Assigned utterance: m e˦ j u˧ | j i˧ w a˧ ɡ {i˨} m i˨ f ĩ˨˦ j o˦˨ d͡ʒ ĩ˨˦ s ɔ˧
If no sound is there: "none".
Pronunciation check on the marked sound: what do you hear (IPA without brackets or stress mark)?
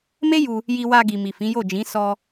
i˨